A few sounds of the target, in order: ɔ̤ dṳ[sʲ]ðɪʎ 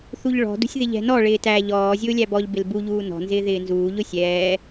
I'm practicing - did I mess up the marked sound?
no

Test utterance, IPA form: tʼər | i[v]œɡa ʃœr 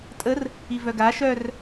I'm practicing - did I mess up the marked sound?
no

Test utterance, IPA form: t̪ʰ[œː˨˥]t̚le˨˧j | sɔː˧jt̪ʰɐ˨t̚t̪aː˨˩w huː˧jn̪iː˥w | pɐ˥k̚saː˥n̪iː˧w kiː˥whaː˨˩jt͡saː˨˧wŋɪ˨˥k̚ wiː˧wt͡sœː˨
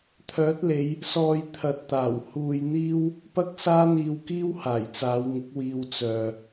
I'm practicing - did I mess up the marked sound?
no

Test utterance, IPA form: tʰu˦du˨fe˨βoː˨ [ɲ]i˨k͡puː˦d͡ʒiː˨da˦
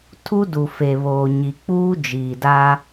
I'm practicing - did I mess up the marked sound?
no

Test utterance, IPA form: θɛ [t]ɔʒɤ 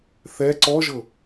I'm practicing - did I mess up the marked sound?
yes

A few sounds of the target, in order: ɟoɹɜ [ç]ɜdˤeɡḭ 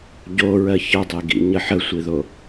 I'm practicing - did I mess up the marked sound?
no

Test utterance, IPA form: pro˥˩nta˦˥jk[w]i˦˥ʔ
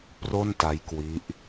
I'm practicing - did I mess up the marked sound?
no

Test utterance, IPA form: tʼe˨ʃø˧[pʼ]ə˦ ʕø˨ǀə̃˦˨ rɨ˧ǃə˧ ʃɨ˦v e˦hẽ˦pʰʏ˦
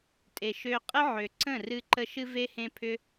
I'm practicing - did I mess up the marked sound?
yes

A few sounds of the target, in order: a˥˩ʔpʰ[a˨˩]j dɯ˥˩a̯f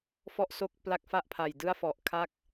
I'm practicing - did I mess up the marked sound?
no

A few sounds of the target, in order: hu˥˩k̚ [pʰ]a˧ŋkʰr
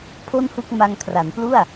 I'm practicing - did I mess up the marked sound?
yes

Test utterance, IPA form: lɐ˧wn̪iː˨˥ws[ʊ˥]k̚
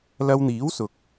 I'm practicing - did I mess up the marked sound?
yes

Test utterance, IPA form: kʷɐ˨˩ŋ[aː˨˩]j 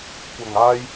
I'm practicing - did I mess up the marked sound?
yes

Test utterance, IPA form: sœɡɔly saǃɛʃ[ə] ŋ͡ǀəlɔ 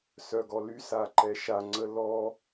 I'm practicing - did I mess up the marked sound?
yes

